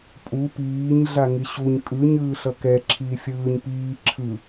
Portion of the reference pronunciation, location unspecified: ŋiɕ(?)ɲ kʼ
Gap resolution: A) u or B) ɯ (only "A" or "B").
A